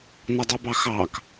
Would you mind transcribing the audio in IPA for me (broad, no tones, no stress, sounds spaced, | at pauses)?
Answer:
n ʌ dˤ u b ɑ x ɑ k